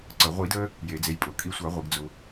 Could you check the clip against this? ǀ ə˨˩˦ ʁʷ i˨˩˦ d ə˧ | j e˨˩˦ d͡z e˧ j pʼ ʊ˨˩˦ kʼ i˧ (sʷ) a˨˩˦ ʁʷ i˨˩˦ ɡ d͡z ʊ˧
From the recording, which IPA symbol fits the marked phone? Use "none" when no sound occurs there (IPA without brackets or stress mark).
sʷ